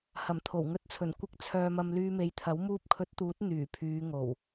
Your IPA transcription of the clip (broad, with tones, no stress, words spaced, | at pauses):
hɐ˨˩mt̪ʰo˨˩wŋɵ˧t̚t͡sʰɵ˨˩n kʷɪ˧k̚t͡sʰœː˨mɐ˨m lyː˧me˨˧j t̪ʰɐ˨˥w muː˧p̚kʰɵ˨˥t̚ t̪uː˨˥t̚ n̪yː˨˩pʰyː˨˧ŋo˨˩w